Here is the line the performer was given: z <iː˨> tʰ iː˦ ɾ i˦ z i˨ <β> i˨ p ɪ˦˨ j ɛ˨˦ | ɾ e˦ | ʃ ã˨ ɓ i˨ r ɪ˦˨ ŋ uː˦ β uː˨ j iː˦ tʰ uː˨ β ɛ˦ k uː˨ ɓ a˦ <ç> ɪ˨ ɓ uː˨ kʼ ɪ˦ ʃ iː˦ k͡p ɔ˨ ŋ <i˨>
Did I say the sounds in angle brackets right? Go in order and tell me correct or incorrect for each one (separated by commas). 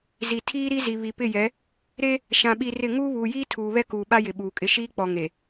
incorrect, correct, incorrect, incorrect